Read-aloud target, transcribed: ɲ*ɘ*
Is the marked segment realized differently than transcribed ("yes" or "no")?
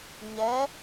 yes